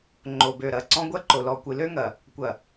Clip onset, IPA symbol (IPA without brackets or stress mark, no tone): ŋ͡ǃ